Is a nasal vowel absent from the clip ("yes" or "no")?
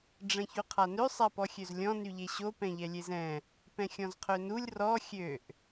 no